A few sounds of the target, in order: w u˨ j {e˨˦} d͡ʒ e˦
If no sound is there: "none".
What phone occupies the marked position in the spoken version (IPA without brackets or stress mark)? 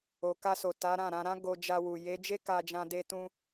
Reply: e˨˦